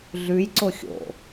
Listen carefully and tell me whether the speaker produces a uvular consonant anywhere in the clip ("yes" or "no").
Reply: no